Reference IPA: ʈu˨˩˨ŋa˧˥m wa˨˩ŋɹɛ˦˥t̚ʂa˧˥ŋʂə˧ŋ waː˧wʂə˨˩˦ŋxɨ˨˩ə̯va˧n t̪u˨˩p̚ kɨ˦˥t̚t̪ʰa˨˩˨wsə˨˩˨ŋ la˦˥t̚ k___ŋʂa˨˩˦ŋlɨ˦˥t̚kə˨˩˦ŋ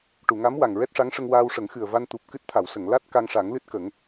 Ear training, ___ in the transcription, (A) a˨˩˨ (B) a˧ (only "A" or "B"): B